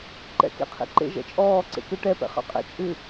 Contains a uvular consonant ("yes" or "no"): yes